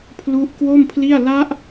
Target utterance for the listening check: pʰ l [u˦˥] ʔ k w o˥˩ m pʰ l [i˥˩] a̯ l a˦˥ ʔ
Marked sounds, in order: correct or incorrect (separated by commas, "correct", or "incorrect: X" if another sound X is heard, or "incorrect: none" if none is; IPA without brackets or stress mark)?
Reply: correct, correct